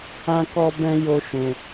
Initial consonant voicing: voiceless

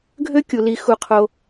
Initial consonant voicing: voiced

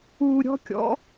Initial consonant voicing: voiced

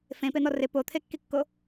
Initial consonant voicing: voiceless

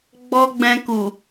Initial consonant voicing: voiced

